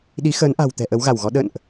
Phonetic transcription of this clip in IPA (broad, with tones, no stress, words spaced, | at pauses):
ɗi˨˦xəː˨˦nʔa̤˨˩wt̪ɛ̤˨˩ ʔə˨˦wɣa˧˩wɣɔ˨˦ ɗə̰˧˨nʔ